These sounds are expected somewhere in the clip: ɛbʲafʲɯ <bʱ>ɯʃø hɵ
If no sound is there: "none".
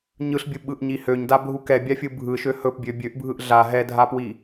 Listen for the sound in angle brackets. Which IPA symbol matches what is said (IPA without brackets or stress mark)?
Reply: bʱ